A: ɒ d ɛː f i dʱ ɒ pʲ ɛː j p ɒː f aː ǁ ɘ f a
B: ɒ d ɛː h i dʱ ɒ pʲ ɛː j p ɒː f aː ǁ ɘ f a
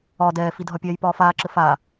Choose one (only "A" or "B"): A